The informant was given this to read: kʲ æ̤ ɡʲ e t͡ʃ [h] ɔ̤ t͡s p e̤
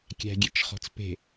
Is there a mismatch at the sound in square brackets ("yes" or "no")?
yes